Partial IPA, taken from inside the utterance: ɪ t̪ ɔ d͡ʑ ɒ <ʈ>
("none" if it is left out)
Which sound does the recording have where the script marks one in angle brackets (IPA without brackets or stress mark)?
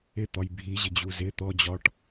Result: ʈ